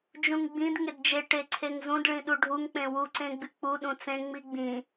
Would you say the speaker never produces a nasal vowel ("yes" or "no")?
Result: no